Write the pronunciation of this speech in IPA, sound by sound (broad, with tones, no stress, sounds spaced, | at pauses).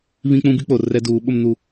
β ĩ˦ k͡p ũ˦ b i˦ k͡p o˨ r ɛ˦ d uː˨˦ ɓ ʊ˦ m n u˦